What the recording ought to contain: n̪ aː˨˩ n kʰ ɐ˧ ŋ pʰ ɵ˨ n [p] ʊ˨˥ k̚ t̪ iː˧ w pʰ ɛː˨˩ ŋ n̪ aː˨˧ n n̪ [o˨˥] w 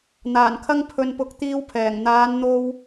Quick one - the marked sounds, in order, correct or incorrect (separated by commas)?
correct, incorrect